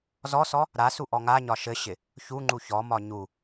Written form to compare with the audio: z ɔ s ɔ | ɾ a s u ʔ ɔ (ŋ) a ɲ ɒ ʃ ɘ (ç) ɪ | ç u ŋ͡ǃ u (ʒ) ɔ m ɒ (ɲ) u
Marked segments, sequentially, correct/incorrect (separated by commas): correct, incorrect, incorrect, correct